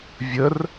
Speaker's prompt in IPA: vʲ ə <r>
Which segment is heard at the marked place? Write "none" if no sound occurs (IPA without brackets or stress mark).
r